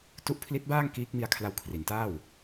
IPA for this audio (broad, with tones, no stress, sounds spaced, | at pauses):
t u˦˥ ʔ pʰ l i˦˥ t̚ b aː˥˩ ŋ k iː˦˥ k̚ m i˧ a̯ kʰ l a˧ w kʰ r i˩˦ n t aː˥˩ w